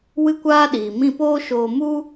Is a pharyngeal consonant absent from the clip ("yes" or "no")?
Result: yes